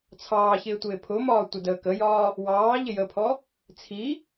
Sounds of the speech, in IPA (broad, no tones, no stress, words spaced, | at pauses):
t͡sʰɑːçɪː tʷɪːpʰʊmɒː tʷɪdəːkəjɒː | wɑː ʎɪjəpʰɔ | t͡sʰi